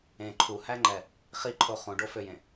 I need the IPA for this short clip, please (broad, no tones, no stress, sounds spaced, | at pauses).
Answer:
ẽ ǃʰ u h æ ŋ͡ǃ ɛ | χ i ǃʰ o χ ũ ɖ o f ø j ẽ